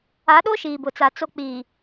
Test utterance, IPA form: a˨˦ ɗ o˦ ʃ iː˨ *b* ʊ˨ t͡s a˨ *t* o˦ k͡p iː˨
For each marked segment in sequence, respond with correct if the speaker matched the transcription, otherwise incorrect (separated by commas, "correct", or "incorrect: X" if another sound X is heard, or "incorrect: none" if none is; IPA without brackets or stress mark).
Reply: correct, incorrect: t͡s